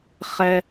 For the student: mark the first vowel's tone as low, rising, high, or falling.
high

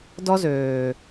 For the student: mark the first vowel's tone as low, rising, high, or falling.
high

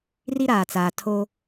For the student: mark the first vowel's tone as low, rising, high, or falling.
high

